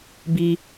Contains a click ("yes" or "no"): no